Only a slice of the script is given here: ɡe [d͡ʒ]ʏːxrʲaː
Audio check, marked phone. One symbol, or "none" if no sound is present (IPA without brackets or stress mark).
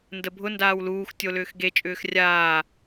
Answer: t͡ʃʼ